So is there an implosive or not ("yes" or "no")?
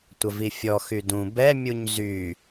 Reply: no